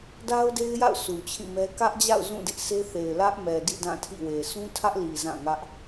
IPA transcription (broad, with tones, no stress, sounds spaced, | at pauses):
d a˦ ʊ̯ d e˦ ɪ̯ j a̰˦˨ ʊ̯ s u˨ t͡ɕʰ ĩ˦˨ m ɛ˦ k ä˦ ʔ d͡ʑ a̰˦˨ ʊ̯ z ũ˦˨ d ɪ˦ ʔ sʰ e˦ θ e˨ ɪ̯ l ä˦ ʔ m ɛ˨ d ḭ˦˨ d ã˦˨ tʰ ḭ˦˨ w e˨ sʰ ũ˦ tʰ ä˦ ʔ l i˨ z ã˦˨ ŋ ä˦ ʔ